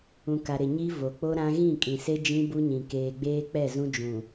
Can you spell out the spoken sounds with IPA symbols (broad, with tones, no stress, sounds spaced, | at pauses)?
ũ˨ k a˨ ɾ ɪ˨ ɲ i˦ v o˨ k͡p o˦ ɾ ã˦ ɣ ĩ˦˨ kʼ ĩ˨ s e˦ d͡ʒ ĩ˦ b u˦ ɲ ĩ˨ k eː˨ ɡ͡b eː˦ k͡p ɛ˦˨ z ũ˦ d͡ʒ ũ˨